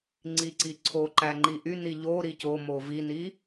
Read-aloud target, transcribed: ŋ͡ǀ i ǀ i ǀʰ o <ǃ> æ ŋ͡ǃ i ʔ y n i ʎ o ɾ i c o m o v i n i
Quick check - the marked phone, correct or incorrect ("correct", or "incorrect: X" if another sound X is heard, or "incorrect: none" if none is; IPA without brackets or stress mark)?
correct